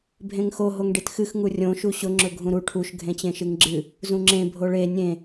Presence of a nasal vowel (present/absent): present